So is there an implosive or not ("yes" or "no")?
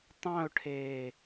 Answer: no